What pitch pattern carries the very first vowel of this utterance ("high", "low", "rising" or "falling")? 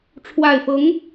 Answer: low